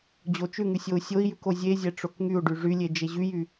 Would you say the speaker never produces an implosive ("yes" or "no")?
yes